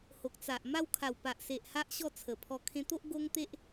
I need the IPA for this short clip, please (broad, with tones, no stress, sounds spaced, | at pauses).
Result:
h o˨ k̚ t͡s a˨ ʔ m a˦ w kʰ a˨˩ w p a˨ ʔ s e˨ ʔ h a˦ ʔ ɕ ɔ˥˧ t͡sʰ ə˨˩ pʰ ɔ˧ kʰ ẽ˧ t̪ o˦ ʔ ɡ o˦ ŋ t̪ e˦ ʔ